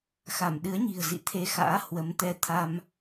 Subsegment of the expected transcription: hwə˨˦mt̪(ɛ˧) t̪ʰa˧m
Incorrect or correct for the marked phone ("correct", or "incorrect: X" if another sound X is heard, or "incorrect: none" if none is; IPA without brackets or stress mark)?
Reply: correct